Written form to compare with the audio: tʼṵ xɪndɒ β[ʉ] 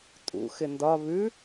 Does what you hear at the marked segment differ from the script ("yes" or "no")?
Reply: no